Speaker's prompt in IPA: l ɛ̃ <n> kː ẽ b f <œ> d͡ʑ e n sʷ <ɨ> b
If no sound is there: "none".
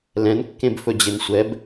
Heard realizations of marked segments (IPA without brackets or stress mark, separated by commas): n, ɵ, ɛ